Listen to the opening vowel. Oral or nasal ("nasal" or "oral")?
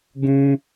nasal